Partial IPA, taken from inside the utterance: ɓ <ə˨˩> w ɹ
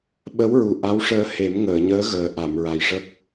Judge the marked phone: incorrect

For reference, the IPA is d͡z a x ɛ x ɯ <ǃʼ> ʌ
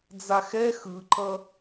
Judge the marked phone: incorrect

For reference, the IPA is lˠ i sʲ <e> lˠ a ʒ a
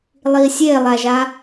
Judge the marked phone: correct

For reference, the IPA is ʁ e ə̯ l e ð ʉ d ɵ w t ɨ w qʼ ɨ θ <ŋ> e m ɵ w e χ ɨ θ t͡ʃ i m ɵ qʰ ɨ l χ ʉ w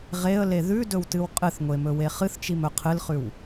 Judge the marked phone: incorrect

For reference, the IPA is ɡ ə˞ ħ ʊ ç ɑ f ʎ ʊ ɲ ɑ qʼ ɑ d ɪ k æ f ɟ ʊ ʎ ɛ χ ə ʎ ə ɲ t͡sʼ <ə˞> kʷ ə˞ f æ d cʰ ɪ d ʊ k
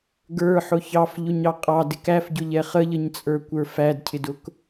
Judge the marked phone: correct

